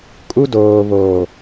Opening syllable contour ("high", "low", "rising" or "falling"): high